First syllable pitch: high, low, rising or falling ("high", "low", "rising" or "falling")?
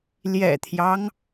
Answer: low